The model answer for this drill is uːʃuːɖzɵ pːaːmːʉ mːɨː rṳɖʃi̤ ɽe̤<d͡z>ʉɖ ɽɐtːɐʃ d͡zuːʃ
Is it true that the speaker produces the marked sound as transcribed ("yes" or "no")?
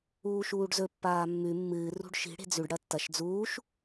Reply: yes